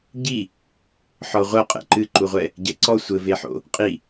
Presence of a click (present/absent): present